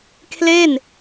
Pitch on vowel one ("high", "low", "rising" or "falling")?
falling